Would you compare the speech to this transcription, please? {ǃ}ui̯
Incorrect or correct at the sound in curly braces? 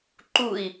correct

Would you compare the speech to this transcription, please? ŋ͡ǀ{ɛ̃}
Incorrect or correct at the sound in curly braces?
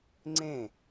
incorrect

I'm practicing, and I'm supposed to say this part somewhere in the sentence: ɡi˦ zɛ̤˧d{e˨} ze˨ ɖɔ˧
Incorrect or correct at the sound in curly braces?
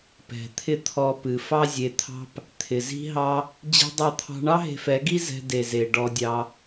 correct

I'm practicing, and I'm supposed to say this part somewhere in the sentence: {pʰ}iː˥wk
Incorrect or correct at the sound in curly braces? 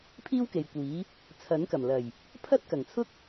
correct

